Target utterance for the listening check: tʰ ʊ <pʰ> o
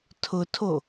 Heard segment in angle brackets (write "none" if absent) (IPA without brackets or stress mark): tʰ